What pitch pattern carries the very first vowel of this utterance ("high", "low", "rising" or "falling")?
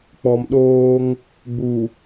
low